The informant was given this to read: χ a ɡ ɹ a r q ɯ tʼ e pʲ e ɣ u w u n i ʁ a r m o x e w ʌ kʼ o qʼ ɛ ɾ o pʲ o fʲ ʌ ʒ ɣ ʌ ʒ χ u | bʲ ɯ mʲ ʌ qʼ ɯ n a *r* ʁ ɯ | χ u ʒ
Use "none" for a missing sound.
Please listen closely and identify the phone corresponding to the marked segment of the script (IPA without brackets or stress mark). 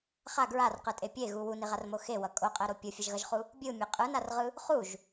r